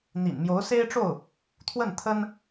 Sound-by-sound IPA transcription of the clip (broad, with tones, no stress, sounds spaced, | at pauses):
n̪ ḭ˨˩ n m j o˧˥ ʊ̯ s e˥ ɪ̯ ʈ͡ʂ o˥˩ ʊ̯ | t̪ʰ w ə˥˩ n t̪ʰ ə˥ n